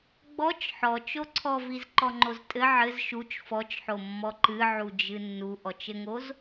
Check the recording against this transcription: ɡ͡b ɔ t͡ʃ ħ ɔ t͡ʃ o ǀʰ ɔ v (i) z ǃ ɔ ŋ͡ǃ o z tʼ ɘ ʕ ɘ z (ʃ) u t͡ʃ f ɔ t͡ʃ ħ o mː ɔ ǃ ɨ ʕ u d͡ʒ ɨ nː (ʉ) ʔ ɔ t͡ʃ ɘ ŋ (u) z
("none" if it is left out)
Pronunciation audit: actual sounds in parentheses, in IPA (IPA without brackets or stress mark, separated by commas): i, ʃ, u, o